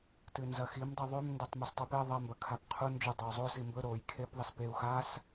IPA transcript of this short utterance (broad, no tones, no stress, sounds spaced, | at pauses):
t ɨ n z ɐ x i m dˤ i ðˤ ʉ m n d o tˤ m ɨ s tˤ u p e ðˤ ɐ m b ɐ kʰ a p qʰ u n d͡ʒ ʉ dˤ e u̯ zˤ o s i m b ɵ ɾ o j kʰ e p ðˤ ɐ s p e u̯ x a s